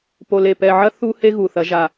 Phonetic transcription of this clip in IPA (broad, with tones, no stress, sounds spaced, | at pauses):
p o˨ l e˨ p ɛ˨ ʕ ɐ˦ θ u˦ h e˦ ɣ u˨ θ ɐ˨˦ ʒ a˨